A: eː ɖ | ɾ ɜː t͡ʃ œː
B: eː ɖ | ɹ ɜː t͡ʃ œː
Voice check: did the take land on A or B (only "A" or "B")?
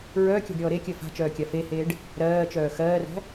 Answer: A